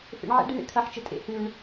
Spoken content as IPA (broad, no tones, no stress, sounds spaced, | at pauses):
f ḛ ɳ ʕ ḛ ɖ e ɳ ḛ kʰ ɐ ħ t͡ʃ ə tʼ ḛ h ʉ ɳ